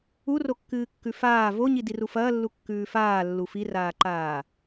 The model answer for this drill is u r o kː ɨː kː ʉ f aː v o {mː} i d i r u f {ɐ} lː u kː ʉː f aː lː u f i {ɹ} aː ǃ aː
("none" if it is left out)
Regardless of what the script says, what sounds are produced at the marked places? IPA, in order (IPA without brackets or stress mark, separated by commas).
ɲ, ɐː, r